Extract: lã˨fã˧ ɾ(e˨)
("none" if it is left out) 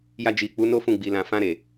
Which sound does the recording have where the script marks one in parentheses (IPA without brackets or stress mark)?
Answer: e˨